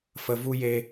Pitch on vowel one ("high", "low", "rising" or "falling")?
low